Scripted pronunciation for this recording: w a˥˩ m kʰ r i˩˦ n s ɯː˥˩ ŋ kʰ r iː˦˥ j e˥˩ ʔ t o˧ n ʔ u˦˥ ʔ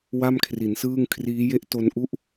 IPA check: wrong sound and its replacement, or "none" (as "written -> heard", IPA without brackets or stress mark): none